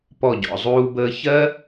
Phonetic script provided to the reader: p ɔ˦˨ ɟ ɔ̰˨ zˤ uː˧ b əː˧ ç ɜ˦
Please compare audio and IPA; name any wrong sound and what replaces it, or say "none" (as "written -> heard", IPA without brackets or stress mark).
none